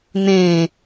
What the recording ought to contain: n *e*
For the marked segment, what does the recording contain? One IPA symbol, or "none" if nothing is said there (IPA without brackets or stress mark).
ẽ